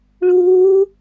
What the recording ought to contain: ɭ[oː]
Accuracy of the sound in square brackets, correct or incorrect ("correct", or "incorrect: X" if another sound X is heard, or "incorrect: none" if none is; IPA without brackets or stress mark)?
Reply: incorrect: uː